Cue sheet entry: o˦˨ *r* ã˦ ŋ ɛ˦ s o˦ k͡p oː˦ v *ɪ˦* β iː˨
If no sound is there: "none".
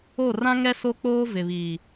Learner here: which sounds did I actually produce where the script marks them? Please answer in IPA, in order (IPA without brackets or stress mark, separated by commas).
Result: r, ɪ˨